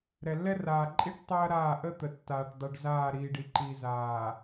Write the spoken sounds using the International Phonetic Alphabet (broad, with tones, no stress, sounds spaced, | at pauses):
ɾ ɛ˨ lː ɛ˦ r aː˨ ǃʼ i˦ ʈ tˤ ɐː˦ ɾ aː˦˨ ʔ ə˦ t̪ ə˨ tː aː˨ ʈ dˤ i˨ ɖ z aː˦˨ ɾ iː˨ ɖ i˨ ǃ iː˨ z aː˨